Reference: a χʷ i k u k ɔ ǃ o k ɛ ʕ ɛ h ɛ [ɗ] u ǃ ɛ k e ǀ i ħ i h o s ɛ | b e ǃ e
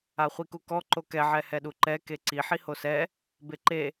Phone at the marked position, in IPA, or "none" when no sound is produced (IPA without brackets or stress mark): ɗ